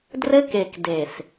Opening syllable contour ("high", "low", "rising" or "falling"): high